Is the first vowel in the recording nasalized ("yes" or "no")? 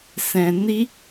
yes